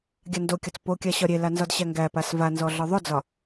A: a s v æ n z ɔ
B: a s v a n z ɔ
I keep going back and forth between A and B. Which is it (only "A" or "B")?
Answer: B